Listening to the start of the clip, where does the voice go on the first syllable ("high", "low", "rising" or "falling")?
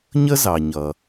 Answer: high